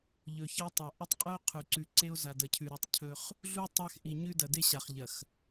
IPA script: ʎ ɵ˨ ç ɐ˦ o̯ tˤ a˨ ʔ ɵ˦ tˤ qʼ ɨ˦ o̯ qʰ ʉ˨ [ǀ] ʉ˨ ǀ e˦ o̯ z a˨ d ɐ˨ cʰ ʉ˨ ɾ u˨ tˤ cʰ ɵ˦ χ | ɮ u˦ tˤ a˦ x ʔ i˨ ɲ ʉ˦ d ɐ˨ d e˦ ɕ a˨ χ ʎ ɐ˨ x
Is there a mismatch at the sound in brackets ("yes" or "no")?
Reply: no